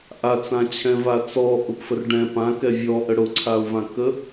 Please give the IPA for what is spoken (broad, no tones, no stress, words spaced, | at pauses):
ʔat͡sãt͡ɕʰɛ̃ vat͡sɔ ʔʊpfərɖɛ̃ pã kɛvʲɔʔə ɽʊǀʰaʊ̯vãkə